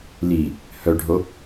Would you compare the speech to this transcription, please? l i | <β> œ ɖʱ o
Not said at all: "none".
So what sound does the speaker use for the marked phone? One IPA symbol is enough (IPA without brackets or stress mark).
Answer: h